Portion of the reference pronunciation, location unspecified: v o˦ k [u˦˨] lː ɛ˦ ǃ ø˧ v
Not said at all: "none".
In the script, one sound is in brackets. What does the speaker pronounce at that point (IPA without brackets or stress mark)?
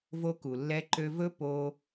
u˨